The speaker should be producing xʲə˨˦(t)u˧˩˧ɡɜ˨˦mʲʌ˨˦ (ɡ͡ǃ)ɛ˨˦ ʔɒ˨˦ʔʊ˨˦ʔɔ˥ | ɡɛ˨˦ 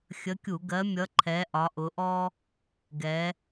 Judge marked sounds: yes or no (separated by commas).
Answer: no, no